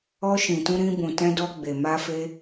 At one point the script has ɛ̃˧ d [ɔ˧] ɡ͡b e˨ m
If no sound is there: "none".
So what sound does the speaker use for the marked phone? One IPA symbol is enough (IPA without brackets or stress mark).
ɔ˧